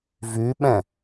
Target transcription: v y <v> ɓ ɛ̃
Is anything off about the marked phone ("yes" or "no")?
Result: yes